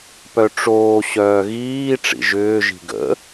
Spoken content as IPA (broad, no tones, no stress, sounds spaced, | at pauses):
p œ ʈ͡ʂ oː ɕ œː ɣ iː ʈ͡ʂ ḭ ʒ ʏː ʒ i̤ ɡ ə̰